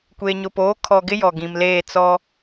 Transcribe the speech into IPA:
kʷ eː˨ ɲ ʊ˨ p oː˨˦ kʰ ɔ˨ ɡ ɪ˦ j ɔ˨ ɡ ĩ˨ m l eː˦˨ t͡s ɔ˦

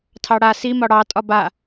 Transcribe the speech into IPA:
tʰ ɑ ɽ a s i m ɒ ɽ ɑ tʼ ɒ b a

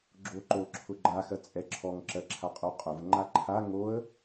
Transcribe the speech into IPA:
ɡ͡ǁ o ǃ o ǁʰ ʊ ɡ͡ǃ a x ɜ t͡sʼ ɛ ǁʰ ɔ ŋ ǁ ɜ ǁʰ a qʼ u qʼ ʊ v ŋ͡ǃ a ǃʰ a ŋ o ə̯

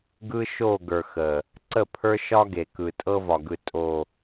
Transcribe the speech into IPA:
ɡ ɯ˦ ʃ o˦˨ ɡ ə˞˨ x ə˨ | ǀ ə˦˨ pʰ ə˞˦ ʃ ɒ˦ ɡ e˨ k ɯ˨ tʼ ɤ˦ v ɒ˨ ɡ ɯ˨ tʼ o˨

